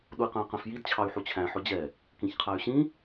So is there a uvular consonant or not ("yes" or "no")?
yes